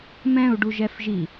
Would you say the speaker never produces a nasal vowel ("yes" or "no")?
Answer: no